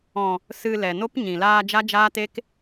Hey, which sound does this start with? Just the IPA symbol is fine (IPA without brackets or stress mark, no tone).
ɔ̃